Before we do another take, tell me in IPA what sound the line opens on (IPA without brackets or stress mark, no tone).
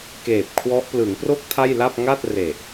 k